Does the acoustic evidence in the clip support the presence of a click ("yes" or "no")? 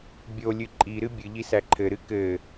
yes